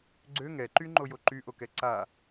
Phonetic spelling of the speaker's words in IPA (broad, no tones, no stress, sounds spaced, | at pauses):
ɡ͡ǀ ø ŋ ɛ ǃ y ŋ͡ǃ o j o ǃ y ʔ o k ɛ ǀ a